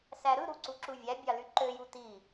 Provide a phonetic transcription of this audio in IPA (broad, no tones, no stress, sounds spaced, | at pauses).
s æ ɾ ɯ ɾ u ǀ u ǁ u vʲ æ bʲ ɑ l y ǃ ø j u t i